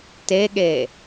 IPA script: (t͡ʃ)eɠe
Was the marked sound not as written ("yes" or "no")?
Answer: yes